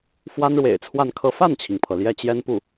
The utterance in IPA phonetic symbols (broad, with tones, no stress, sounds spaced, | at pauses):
f w a˥ n ɻ w ḛ˨˩ ɪ̯ t͡sʰ w a˥˧ n kʰ ɤ˥˧ f a˥˩ n t͡ɕʰ i˩ ŋ pʰ ɤ˩ l j ɛ˥˩ t͡ɕ j ɛ˥ n p u˥˩